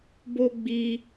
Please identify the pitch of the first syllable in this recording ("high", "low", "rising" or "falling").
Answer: high